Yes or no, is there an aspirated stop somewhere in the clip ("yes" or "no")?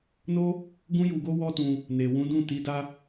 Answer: no